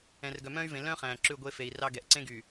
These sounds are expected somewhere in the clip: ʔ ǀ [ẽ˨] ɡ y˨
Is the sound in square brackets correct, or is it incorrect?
incorrect